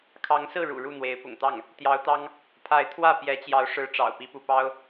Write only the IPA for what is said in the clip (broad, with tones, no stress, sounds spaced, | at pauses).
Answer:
kʰ ɑ˧˥ ŋ s ɹ̩˥˩ ɻ ṵ˨˩ ɻ u˥˩ n̪ w e˧˥ ɪ̯ p ʊ̰˨˩ ŋ t̪ ɑ˥˩ ŋ | t̪ j ɑ˧˥ ʊ̯ t̪ ɑ˥ ŋ | pʰ a˧˥ ɪ̯ t̪ʰ w ä˥˩ p j ɛ˧˥ t͡ɕ j ɑ˧˥ ʊ̯ ʂ ɻ̩˧˥ ʈ͡ʂ ɑ̰˨˩ ʊ̯ p i˥ p u˥ p ɑ˥ ʊ̯